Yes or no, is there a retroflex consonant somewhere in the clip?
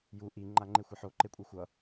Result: no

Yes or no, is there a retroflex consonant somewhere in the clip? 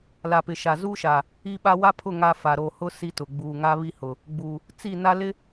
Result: no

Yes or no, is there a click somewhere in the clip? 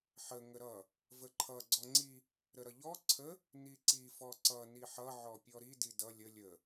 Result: yes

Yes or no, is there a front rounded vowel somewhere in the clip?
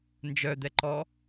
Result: yes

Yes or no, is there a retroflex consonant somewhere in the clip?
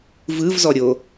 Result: no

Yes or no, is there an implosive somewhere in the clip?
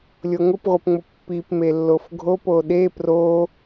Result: yes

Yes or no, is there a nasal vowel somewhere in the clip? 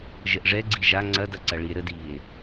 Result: no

